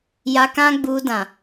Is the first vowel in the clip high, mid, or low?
low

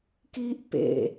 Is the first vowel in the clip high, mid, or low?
high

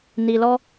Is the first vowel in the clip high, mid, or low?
high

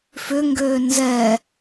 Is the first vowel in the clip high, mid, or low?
high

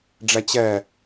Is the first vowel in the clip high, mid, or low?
low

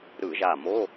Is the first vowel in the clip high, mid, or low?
high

